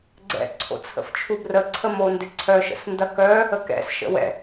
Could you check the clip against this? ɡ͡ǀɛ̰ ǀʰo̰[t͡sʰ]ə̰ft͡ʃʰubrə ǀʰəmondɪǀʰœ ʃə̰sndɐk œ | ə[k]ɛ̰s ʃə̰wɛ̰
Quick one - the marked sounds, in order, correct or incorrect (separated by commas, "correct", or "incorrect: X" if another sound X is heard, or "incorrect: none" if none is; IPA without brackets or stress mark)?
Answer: correct, correct